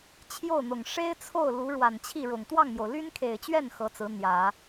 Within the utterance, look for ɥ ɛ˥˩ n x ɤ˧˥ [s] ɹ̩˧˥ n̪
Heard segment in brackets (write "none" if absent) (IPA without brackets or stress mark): t͡s